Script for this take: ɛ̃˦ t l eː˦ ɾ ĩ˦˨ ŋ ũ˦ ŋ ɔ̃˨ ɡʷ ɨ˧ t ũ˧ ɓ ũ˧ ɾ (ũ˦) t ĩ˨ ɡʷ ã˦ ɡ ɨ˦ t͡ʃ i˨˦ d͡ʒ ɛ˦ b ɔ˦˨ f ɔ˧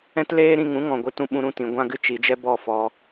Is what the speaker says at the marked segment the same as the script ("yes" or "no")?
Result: no